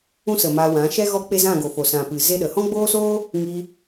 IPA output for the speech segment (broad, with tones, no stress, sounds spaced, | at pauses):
ũ˦ s ə˨ m a˧ w ã˨˦ ʃ ɛ˦ ɣ ɔ˦ k͡p e˦ z ã˦˨ ɡ o˨ f o˨ s ã˨ p ɨ˨ z e˦ ɗ ə˨ h ɔ̃˦ ɡ͡b oː˦ s oː˦ | ŋ i˧